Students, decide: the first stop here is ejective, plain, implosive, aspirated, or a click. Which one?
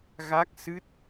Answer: plain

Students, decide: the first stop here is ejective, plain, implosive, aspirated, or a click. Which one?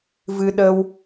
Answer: implosive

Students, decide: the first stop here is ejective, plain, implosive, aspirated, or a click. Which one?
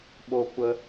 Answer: implosive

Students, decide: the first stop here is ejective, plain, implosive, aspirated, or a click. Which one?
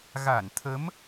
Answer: aspirated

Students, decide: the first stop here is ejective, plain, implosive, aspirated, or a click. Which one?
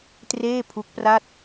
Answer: plain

